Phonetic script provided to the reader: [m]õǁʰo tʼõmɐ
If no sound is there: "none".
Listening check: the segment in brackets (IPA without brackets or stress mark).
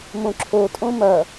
m